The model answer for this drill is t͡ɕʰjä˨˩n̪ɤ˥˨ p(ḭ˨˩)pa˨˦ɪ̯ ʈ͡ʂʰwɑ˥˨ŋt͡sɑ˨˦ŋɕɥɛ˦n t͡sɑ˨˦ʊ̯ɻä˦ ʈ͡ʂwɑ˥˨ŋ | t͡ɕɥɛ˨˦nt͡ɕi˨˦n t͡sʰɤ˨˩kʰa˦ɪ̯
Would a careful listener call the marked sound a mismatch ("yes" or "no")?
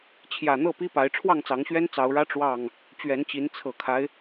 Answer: yes